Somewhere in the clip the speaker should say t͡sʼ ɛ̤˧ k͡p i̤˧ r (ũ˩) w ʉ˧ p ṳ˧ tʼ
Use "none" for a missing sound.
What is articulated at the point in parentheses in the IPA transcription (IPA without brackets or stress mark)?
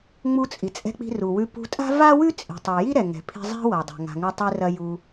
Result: u˩